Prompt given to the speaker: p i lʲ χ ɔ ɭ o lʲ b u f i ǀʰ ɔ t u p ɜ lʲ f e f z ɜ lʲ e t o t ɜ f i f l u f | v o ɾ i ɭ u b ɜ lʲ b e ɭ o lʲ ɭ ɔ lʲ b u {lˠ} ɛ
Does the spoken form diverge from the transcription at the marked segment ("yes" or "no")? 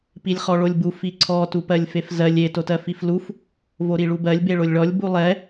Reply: no